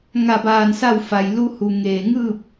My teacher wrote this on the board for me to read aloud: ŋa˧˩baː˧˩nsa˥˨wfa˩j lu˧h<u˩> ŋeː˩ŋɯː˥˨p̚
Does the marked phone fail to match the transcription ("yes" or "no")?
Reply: no